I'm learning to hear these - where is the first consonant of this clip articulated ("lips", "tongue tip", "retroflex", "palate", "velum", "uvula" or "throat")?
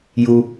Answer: palate